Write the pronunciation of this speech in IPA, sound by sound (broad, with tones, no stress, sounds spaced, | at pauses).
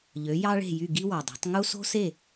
ʎ ø˩˥ j ɑ˥ ɭ e̤˥˩ j y˥˩ ɡ i˥ w ɑ˩ dˤ e̤˩˥ tˤ ŋ u˥ s o̤˥ s e˥˩